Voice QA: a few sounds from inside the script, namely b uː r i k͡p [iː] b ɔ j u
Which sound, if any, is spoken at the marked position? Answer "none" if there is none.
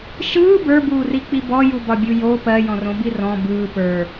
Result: i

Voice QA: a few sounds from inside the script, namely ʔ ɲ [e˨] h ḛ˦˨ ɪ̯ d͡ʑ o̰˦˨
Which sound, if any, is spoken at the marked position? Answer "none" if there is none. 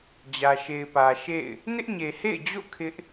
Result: e˨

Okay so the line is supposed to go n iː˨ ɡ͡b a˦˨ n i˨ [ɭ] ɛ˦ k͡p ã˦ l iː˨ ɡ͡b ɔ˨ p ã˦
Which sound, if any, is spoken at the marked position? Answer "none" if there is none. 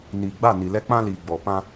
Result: l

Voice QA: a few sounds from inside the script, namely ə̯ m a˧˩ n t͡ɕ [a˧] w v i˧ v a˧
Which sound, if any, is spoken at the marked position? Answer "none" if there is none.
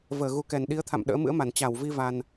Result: a˧˩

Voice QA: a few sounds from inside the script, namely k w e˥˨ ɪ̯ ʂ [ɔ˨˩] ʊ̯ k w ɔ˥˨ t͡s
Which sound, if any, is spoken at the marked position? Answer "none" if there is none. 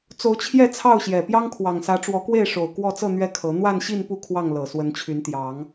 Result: o˨˩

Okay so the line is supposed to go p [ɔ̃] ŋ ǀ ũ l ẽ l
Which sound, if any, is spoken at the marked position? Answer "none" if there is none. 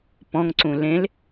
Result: ɔ̃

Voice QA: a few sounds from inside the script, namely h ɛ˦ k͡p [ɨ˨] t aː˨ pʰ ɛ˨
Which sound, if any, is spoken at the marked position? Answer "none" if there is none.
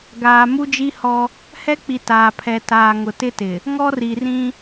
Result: i˨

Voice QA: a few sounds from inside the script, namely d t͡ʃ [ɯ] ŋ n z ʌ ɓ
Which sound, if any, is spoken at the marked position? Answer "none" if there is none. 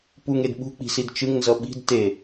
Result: ɯ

